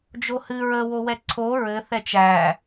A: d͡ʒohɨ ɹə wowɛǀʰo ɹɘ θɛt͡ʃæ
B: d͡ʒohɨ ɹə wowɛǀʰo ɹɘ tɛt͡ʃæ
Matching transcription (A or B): A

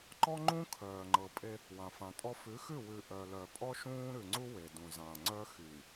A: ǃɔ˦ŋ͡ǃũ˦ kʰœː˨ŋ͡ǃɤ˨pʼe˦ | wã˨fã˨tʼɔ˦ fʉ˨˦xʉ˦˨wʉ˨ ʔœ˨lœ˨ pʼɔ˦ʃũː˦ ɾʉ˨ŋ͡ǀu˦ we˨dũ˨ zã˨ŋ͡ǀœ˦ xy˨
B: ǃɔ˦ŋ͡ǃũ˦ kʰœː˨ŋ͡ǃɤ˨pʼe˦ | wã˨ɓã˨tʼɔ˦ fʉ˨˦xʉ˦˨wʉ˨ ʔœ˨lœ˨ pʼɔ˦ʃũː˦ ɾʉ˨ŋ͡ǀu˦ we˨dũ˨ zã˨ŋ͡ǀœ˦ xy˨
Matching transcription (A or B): A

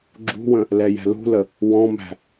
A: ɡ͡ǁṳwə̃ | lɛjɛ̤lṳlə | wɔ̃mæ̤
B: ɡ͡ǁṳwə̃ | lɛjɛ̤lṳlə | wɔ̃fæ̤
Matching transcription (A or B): A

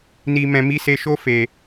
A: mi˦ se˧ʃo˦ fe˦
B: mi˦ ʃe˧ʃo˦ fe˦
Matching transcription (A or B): A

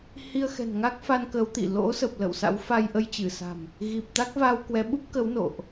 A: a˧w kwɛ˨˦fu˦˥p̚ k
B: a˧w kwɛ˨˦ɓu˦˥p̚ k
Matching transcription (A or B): B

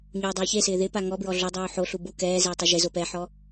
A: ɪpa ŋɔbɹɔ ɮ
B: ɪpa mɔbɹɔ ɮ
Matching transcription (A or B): A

